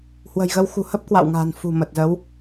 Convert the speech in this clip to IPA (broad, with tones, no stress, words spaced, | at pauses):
hwə̤˨˩jɣə˧wxṳ˨˩ hə˦˥p̚kwa̰˧˨wŋa̤ː˨˩n fṳ˨˩ mə˨˩t̚zə˨˦w